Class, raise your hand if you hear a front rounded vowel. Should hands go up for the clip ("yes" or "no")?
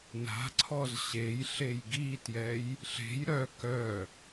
yes